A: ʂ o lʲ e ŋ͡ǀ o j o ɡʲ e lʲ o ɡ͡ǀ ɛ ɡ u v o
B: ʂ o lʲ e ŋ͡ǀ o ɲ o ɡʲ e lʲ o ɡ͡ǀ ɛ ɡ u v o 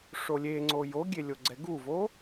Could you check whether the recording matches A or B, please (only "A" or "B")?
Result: A